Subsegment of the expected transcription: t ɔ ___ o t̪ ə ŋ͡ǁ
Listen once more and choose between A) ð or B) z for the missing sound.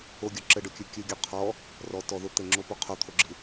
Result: A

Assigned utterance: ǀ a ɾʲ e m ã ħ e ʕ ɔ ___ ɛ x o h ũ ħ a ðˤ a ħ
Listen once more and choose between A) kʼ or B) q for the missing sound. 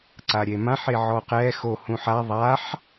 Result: B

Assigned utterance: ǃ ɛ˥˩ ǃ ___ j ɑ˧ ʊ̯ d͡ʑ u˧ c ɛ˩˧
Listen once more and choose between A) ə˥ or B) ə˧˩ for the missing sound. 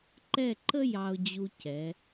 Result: A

